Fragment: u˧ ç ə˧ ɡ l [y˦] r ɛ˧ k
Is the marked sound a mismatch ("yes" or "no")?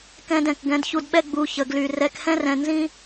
yes